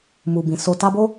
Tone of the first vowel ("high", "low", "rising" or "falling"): low